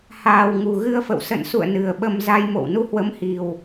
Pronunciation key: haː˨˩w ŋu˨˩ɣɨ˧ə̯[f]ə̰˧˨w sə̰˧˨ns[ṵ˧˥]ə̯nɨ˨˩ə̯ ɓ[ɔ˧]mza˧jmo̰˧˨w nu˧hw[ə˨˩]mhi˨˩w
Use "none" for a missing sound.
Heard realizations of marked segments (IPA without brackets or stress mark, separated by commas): f, ṵ˧˨, ə˧, ə˨˦